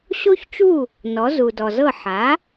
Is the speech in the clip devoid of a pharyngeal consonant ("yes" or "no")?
no